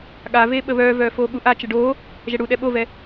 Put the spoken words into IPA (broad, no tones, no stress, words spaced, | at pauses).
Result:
ɠaveːɓə βœːvœː foːɠuʔa t͡ʃəɖoː | ʒɛɽuɗɛ ɓovɛ